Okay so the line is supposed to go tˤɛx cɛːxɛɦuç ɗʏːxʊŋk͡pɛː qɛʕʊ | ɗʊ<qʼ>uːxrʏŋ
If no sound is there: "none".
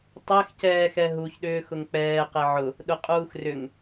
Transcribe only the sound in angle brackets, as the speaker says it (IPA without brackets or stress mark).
qʼ